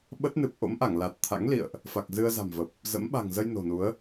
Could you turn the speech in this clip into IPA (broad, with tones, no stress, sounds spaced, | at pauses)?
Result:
ɓ ə˦˥ t̚ n ɨ˨˩ p̚ ʔ o̰˧˥ m ʔ a˧˩ ŋ l a˨˩ t̚ t̪ʰ a̰˧˥ ŋ l ḭ˧˨ ə̯ ʔ | f a˨˩ k̚ z ɨ˧ ə̯ z a̤˨˩ m v ə˨˩ p̚ | z ə̰˧˥ m ɓ a̤˨˩ ŋ z ə˧ j n o̤˨˩ n u˨˦ ə̯